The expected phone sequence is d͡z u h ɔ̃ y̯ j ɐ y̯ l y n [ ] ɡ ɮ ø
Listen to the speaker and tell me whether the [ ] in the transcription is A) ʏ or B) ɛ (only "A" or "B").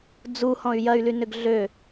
A